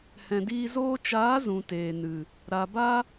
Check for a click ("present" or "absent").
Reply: absent